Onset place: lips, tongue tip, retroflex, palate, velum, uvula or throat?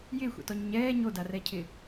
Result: palate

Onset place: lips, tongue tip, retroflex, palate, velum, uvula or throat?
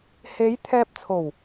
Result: throat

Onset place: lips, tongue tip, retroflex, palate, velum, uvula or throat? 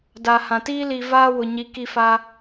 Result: tongue tip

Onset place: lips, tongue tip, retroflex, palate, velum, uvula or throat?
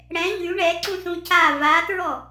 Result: retroflex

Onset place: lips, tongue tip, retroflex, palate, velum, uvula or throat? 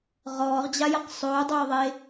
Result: uvula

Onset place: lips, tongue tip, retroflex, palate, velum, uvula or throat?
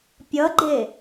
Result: lips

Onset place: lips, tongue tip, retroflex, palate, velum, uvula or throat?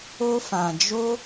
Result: lips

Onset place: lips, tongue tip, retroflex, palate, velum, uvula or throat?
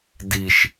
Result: tongue tip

